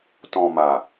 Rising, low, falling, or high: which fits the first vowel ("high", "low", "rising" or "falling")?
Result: low